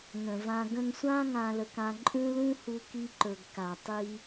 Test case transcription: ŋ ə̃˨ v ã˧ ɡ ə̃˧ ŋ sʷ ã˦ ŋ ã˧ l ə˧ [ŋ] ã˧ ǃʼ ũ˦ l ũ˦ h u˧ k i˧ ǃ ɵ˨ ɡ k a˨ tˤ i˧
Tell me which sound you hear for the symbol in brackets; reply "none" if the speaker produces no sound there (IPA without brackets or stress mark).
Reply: k